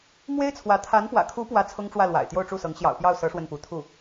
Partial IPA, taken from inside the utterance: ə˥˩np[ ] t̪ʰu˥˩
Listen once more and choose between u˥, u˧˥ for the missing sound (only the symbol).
u˧˥